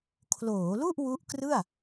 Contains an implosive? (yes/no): no